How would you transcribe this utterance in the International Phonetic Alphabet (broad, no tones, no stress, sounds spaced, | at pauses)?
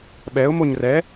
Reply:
ɓ ɛ ʊ̯ m o ɲ r ɛ